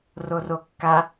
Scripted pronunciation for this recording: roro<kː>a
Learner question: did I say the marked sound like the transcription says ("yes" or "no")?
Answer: yes